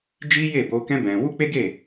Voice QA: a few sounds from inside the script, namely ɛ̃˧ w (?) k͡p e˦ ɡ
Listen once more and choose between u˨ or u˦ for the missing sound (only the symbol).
u˦